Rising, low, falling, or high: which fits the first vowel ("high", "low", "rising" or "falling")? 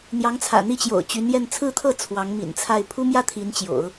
rising